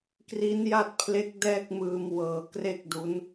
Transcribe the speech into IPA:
k r i˦˥ n j a˥˩ t̚ pʰ l e˦˥ k̚ d ɛː˥˩ k̚ m ɯː˧ m w ɤː˨˩ k r e˥˩ k̚ d u˦˥ n

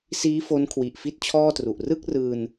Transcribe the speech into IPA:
s iː˦˥ f o˦˥ n kʰ w i˨˩ ʔ f i˥˩ t̚ t͡ɕʰ ɔː˥˩ t r u˨˩ ʔ r ɯ˥˩ k̚ r ɯː˧ n

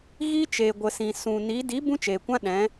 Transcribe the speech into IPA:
ɣ i˦ t͡ʃ eː˨ ɡʷ ə˨ s ĩ˨ s ũ˨ n i˨˦ d i˨˦ b ũ˦ t͡ʃ eː˨ kʷ ã˦ ɗ ɛ̃˨˦

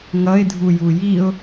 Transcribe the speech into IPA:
ŋ ʌ ɪ̯ dʱ u j u j i ʊ̯

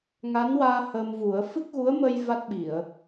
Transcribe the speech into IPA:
ŋ a˧˥ n w aː˧ h ə˧ m v u˨˩˦ ə̯ f ɨ˦˥ k̚ ɣ u˧˥ ə̯ m ə˧ j v a˦˥ t̚ ɓ i˨˩˨ ə̯

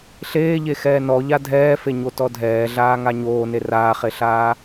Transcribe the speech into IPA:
ɬ eː ʎ e x ɛː n ɔ ʎ a dʱ ɛː f e ɲ o t ɔ dʱ ɛː ɮ aː ŋ a ɲ oː n e r aː χ e ɬ aː

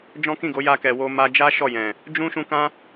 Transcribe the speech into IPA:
d͡ʒ ɔ̃˦ k ĩ˦˨ ɡ o˨˦ j a˧ k ɛ˨ w o˧ m a˧ d͡ʒ a˦ ʃ ɔ˦˨ j ɛ̃˨ | d͡ʒ ũ˦ ʃ ũ˧ k ã˦

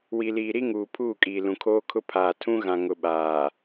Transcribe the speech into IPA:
w i˨ l iː˨ ɾ i˦ ŋ uː˨ pʰ uː˦˨ kʼ iː˨ l ũ˨ kʰ oː˦ kʰ ʊ˦ pʰ aː˨ tʰ ũ˦ ɣ ã˨ ŋ ʊ˨ ɓ aː˨

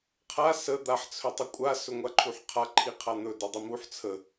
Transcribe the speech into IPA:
qʰ a s ə d̪ a ħ t͡sʰ ɵ tˤ ə kʷʼ a s ɵ ŋʷ a ǃʰ u ħ qʰ a ǃʰ i qʰ a n̪ ɵ d ɵ dˤ i m u ħ t͡sʰ ə

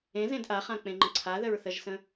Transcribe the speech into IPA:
ẽ z ẽ d ʔ a χ ã k͡p ẽ ŋ͡ǃ ə̃ ǀʰ a ð ə ɹ θ ə ʒ s ə̃

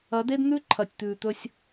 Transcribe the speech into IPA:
ɐ˨˦ d e˦ d n̪ ʉ˦ ǃʰ ɐ˨ tʲ t̪ ʉː˨ t̪ ɵ˦ sʲ

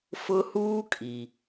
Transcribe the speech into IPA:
f ʊ˦ h uː˦ kʼ i˨

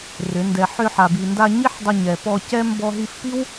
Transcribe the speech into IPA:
r ʏ˨˦ n d ɛ˧ ħ ʏ˧ ħ a˨ b i˨ n d a˧ ɲ i˦ ħ dˤ ə˧ ɲ ɛ˨ p ɔ˧ c ɛ˦ m b ɔ˧ ɦ i˧ f p i˦ w

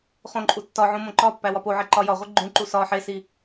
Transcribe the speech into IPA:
χ õ ǃʼ u tː ɒ ʕ õ m õ ǃ ɒ pː æ w ɒ p o ʕ e ǃ ɒ j ɒ ʁʷ i ɡ͡ǃ ũ ǃ u s ɒ ħ e s i

